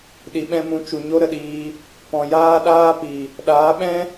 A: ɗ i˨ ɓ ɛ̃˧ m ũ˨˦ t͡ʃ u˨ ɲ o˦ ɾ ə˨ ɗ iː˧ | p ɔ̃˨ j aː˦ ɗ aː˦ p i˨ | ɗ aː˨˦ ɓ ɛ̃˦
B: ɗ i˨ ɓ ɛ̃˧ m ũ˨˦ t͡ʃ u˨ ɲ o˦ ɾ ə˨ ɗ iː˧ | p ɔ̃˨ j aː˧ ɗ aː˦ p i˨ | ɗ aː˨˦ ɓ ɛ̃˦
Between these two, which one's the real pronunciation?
A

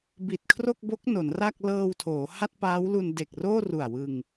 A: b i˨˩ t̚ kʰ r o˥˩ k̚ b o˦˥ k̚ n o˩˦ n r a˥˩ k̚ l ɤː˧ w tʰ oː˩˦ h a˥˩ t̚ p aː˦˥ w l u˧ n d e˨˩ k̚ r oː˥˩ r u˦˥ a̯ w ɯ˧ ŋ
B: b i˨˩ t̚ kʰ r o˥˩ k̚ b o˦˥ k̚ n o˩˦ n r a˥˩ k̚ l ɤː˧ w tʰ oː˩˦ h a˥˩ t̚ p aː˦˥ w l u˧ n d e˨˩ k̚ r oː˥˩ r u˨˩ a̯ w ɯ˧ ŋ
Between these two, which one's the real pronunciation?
B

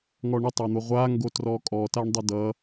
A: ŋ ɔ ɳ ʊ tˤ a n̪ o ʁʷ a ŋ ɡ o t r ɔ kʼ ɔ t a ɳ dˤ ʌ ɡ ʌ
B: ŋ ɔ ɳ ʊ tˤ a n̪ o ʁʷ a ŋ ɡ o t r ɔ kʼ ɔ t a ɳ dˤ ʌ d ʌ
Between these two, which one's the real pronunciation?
B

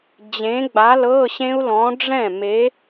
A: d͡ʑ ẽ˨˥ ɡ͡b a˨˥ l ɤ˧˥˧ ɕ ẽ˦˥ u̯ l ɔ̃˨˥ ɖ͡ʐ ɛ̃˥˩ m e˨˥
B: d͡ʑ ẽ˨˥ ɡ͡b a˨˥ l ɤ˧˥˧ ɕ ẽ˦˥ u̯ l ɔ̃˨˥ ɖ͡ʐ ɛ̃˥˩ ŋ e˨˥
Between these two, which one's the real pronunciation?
A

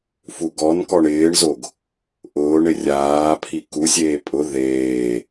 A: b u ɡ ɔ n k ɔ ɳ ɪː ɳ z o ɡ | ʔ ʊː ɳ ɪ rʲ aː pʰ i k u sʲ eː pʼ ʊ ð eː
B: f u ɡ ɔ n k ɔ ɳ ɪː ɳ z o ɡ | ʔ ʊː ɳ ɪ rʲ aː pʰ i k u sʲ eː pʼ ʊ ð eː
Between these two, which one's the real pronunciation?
B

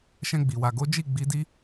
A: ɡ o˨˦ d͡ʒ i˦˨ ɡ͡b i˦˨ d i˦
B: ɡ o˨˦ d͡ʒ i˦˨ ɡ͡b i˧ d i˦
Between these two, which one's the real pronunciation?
B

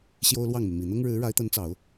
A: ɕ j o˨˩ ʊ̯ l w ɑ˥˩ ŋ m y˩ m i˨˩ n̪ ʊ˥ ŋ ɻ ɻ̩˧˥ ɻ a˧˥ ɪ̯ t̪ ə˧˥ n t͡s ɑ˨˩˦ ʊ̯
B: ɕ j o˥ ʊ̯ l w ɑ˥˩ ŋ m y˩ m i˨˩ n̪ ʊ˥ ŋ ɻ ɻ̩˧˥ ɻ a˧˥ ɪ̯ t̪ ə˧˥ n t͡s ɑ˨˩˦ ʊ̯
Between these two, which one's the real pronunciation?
B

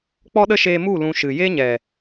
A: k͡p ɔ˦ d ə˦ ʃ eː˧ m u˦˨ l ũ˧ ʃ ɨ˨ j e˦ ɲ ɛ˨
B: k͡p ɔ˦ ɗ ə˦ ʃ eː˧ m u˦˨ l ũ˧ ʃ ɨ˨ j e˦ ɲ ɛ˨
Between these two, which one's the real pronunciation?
B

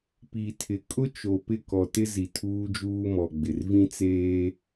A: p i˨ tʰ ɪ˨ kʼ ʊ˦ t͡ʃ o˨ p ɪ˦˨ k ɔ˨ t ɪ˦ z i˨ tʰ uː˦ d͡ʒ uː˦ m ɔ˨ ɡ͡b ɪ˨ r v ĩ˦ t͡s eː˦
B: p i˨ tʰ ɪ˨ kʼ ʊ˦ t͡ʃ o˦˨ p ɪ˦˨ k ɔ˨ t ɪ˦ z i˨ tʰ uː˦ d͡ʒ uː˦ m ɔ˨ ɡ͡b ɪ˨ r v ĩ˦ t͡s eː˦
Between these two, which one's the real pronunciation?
A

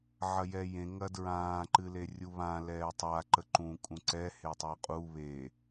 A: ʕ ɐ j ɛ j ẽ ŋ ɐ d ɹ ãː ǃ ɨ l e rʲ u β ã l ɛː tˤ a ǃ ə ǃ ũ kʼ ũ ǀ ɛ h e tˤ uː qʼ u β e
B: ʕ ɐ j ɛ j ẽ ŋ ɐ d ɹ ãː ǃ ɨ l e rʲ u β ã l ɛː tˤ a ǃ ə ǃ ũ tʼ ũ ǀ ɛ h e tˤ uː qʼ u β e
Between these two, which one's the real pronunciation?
A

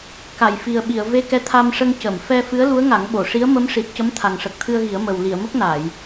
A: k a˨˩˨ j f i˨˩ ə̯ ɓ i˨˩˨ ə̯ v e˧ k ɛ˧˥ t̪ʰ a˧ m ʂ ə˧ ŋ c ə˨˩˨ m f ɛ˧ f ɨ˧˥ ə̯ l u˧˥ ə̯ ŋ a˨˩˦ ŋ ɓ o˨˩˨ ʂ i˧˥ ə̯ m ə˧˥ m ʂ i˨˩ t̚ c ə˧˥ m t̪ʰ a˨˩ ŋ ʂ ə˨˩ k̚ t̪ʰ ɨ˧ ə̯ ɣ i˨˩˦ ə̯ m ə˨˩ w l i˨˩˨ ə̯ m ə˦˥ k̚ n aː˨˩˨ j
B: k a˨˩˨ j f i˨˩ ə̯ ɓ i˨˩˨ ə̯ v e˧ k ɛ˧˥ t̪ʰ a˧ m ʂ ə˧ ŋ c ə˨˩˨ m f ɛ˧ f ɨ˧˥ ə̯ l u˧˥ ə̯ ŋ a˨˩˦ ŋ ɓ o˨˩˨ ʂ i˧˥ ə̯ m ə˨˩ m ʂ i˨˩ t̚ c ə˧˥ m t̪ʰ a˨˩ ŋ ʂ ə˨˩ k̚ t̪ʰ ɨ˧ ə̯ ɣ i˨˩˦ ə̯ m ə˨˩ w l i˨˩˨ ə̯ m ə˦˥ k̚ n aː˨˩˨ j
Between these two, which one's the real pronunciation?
A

